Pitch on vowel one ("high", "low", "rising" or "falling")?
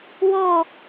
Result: falling